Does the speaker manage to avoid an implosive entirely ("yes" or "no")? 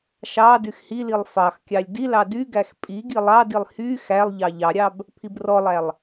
yes